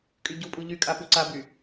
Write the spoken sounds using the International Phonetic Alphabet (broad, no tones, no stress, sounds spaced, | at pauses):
kʼ y ɟ u pʼ u ʎ y kʼ a p u ǀ a b y